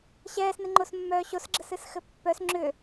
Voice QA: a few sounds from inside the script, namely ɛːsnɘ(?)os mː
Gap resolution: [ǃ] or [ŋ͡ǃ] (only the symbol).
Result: ŋ͡ǃ